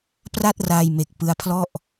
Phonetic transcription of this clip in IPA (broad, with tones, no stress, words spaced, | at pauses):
pra˥˩t̚ra˧jme˨˩k̚ pɯ˦˥a̯pʰlɔ˥˩ʔ